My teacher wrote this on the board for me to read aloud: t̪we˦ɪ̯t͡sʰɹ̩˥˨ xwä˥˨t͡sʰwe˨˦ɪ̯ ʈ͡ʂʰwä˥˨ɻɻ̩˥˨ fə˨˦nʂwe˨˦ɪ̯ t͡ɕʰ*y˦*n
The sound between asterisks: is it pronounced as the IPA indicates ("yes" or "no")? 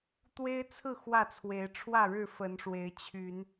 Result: no